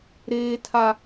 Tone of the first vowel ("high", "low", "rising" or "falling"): high